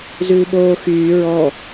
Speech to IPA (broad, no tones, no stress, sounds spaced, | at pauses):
z ʉː ɓ oː x yː ɹ ɔ